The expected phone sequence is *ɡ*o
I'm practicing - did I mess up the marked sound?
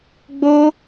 yes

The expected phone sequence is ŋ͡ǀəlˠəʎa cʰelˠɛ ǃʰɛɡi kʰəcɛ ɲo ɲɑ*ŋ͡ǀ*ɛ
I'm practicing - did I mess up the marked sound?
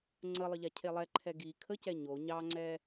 no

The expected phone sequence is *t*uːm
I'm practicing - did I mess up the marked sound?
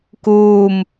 yes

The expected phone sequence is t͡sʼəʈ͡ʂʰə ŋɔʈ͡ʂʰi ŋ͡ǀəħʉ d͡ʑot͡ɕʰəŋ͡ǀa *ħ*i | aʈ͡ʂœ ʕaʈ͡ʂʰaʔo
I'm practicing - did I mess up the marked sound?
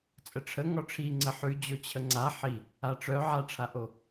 no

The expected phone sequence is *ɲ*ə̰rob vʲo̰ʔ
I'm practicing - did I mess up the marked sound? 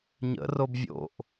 no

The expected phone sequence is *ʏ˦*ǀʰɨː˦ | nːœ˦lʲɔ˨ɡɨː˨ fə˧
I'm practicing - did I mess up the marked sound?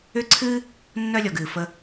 no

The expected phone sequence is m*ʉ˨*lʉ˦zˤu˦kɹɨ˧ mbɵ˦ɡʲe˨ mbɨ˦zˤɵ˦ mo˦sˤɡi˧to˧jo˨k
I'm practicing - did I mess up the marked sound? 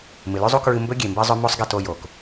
yes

